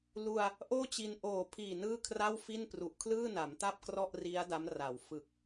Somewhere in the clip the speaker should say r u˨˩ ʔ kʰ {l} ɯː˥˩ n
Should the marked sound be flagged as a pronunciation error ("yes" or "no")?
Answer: no